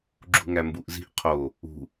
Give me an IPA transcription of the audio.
ɡ͡ǁ ṳ ŋ æ m b u ʔ z i̤ ʔ qʰ o | ṳ

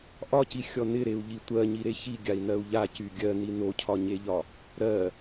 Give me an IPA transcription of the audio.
ʔ ɒ c i xʲ ɔ n ɪ ɾ e u̯ ʎ i tʷ ɜ ɲ i ɾ e ç i ɡʲ a i̯ n ɜ u̯ ʎ a c y ɡʲ ɜ n i n o cʰ ɒ ɲ e ʎ ɒ | ɾ ɜ

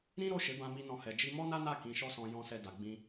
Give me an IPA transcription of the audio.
ɾ ĩ˦ ɾ o˦˨ ʃ e˨˦ b ã˦ m i˦ n ɔ̃˦˨ h ɛ˧ d͡ʒ i˧ m ɔ˦ n a˦ n a˦˨ k ĩ˨˦ ʃ ɔ˦ s ɔ̃˧ j ɔ̃˧ s ɛ˧ d a˨ ɡ͡b ĩ˧

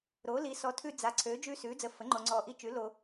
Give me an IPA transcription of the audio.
ɾ oː˩˥ l i˩˥ s ɔ˩˥ tʰ ʉ˦ d͡z a˩˥ ǀʰ øː˩˥ d͡ʒ ʉː˦ s ʉː˩˥ d͡z əː˨ f ə˩˥ ŋ͡ǃ o˨ ŋ͡ǀ ɔː˨ ʔ i˦ t͡ʃ ʉ˩˥ l o˨

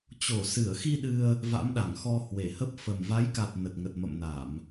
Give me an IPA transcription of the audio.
t͡ɕ o˧˩ s ɨ˧˩ ə̯ x i˧ ɗ ɨ˧ ə̯ | v a̰˧˥ m ɗ a˧˩ ŋ x ɔ˧ h w e˧˩ h ə˦˥ p̚ f ə˨˩ m v a˨˦ j k a˨˩ t̚ n ə˨˩ t̚ ŋ ə˨˩ t̚ m ə̰˧˨ m n a˧˩˨ m

